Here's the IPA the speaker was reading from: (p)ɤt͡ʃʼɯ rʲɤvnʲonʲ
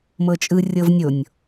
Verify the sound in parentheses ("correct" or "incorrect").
incorrect